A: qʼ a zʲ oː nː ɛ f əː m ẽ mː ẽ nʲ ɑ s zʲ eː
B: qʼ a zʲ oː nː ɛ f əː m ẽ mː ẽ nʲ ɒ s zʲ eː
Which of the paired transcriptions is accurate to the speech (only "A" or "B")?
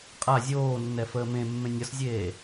B